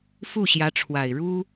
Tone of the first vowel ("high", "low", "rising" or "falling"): falling